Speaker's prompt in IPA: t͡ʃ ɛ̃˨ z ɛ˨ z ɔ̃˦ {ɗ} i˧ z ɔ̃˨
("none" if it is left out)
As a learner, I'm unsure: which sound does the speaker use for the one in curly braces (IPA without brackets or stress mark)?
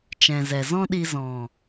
ɗ